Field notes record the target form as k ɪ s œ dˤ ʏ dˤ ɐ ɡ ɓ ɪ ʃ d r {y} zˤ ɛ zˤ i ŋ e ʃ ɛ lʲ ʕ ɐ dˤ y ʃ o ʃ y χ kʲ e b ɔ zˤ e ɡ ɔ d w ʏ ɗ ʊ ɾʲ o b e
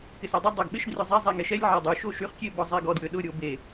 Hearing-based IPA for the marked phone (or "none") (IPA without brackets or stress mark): ʏ